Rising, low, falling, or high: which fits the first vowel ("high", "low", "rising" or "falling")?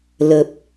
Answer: low